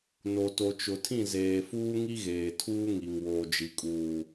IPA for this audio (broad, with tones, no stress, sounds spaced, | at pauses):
n o˨ t o˨ t͡ʃ ʊ˨ tʰ ĩ˦˨ z eː˨ f uː˦ ŋ i˦ ɣ eː˨ tʰ uː˦ ŋ i˨ ŋ w oː˨ d͡ʒ i˨ kʼ uː˨